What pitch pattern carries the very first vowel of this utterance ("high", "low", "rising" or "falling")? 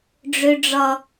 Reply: low